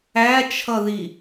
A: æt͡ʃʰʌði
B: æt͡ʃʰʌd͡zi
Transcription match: A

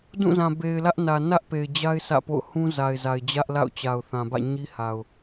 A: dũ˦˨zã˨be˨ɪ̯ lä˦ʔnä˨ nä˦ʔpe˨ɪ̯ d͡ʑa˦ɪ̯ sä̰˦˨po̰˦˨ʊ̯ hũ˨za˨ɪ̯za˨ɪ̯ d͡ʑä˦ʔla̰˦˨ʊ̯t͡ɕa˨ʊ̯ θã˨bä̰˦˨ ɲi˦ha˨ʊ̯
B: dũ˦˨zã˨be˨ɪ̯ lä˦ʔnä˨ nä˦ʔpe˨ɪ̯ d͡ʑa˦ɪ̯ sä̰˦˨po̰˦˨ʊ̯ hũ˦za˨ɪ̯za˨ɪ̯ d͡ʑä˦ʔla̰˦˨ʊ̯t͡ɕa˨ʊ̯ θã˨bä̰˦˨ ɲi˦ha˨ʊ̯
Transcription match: B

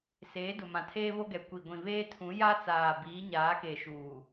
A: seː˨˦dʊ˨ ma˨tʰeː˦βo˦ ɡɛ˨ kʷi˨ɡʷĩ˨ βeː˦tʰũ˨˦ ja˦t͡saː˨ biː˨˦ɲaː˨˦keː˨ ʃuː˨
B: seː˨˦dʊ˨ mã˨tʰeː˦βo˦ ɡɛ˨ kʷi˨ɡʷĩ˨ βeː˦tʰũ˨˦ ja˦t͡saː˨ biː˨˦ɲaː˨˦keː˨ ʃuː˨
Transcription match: B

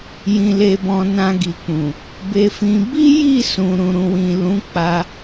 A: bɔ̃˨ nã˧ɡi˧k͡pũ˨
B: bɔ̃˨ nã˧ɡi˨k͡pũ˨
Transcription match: B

